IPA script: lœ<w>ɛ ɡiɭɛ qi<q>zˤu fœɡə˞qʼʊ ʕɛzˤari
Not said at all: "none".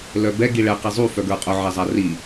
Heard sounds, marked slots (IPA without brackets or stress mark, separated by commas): b, none